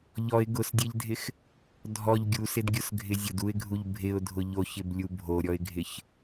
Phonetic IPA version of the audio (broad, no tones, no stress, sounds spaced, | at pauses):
ʎ ɔ ɪ̯ ɡ ʊ s dʲ e ʎ dʱ ɪ x | dʱ ɔ ʎ ɡʲ u s ɪ d ɡʲ ʊ s ɡʱ ɪ zʲ ʊ d u ɪ̯ ɡʱ u ʎ bʱ ɪ ʊ̯ dʱ ʊ ʎ o ç ɪ b lʲ u bʱ o ɾʲ ɔ ɪ̯ ɡʱ ɪ ç